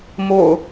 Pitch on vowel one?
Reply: low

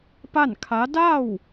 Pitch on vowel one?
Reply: falling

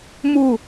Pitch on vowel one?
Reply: falling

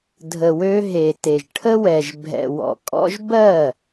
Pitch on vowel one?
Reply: low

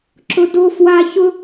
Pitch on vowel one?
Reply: high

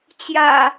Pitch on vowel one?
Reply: low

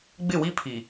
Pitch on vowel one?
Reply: falling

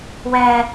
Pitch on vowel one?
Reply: high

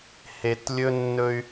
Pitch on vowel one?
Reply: low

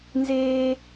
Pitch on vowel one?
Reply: high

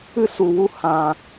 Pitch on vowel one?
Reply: high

